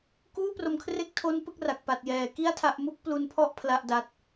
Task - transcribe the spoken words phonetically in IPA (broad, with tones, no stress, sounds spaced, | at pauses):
k uː˥˩ p r o˧ m kʰ r e˥˩ k̚ tʰ o˦˥ n p ɯ˦˥ k̚ r a˨˩ k̚ p a˨˩ t̚ j ɛː˩˦ k i˥˩ a̯ tʰ a˥˩ ʔ m u˥˩ k̚ p l u˧ n pʰ ɔ˥˩ ʔ pʰ l a˥˩ ʔ d a˦˥ t̚